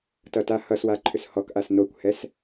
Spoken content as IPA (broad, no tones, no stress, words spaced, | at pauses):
tʌtahʌswa ǃʰʏshɔkʔas nokʷhɛs